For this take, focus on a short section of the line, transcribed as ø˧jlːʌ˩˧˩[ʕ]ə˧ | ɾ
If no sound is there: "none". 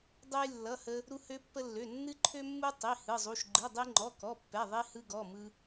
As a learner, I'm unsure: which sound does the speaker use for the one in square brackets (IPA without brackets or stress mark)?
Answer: h